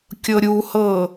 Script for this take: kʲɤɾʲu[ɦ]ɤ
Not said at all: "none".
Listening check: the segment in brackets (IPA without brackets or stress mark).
h